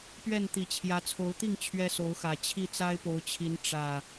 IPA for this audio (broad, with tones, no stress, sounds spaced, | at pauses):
p ɥ ɛ˥˨ n t̪ i˨˩ t͡ɕʰ j ä˨˦ t͡sʰ o˨˦ ʊ̯ t̪ i˥˨ ŋ t͡ɕʰ ɥ ɛ˦ s o˨˦ ʊ̯ x ä˨˩ t͡ɕʰ i˥˨ t͡s a˦ ɪ̯ p o˨˦ ʊ̯ t͡ɕʰ i˨˦ n ʈ͡ʂ ä˨˩